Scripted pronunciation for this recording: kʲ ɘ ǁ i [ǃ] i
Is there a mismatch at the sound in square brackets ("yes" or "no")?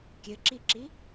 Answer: yes